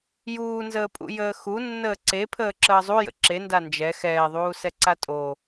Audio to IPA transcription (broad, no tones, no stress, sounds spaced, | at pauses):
j uː n z əː pʼ ṵ j əː x u nː əː ǀ e pʰ əː ǁ əː zˤ u j ə̰ ǁ e n d a n d͡ʒ ɛ x ɛː ðˤ uː s ɛ ǀ a tʼ o